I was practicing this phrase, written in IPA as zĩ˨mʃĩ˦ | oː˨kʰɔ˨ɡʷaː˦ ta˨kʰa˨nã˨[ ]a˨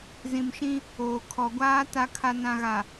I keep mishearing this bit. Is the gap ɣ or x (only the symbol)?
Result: ɣ